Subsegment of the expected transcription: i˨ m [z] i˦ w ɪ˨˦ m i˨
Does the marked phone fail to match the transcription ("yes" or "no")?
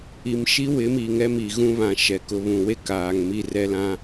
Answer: yes